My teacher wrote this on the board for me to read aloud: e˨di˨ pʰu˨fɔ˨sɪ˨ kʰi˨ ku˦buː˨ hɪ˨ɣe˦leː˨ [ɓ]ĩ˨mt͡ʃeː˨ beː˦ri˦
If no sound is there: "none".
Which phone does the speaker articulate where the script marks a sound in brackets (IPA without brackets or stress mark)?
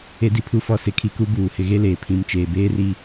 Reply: pʰ